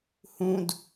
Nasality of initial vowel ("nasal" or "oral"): nasal